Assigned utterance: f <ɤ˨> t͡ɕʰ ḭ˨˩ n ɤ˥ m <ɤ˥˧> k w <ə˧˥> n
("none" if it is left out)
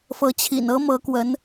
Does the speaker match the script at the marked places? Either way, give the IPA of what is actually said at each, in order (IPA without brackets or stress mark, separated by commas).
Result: ɤ˧˥, ɤ˧˥, ə˧˥